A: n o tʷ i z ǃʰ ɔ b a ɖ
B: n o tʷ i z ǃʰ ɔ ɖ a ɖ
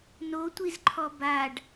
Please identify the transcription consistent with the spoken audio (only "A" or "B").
A